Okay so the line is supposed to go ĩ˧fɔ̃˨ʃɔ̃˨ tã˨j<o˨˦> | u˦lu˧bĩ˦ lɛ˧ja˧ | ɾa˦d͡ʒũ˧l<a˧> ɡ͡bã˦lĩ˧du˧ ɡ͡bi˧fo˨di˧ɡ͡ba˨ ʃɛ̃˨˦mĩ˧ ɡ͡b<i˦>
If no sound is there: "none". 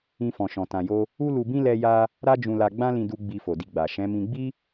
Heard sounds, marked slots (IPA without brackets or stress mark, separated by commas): o˧, a˧, i˦